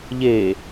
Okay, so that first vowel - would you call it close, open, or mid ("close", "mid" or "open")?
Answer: mid